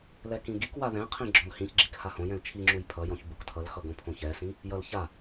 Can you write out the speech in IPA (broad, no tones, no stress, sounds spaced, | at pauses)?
l ɛ k ĩ ɡ i k w a ð ɛ̃ qʰ ĩ ɡ͡ǁ ɔ̃ l h ĩ ç ɡ͡ǁ i k h a h õ j ɛ̃ l t͡ʃʰ i ŋ͡ǁ u j pʰ ʌ j ɔ̃ ç b u k tʰ ʌ l x ʌ ɡ õ pʰ õ ç ɛ s ĩ | j ʌ l ç a